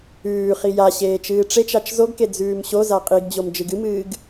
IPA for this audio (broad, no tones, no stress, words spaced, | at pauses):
ʉːχi jaɕeː t͡ʃɨːʈ͡ʂet͡ʃat͡ʃ zoɡke d͡zʉːmɕoza qʼiɡd͡ʑom d͡ʒɨɡɨmɨːɡ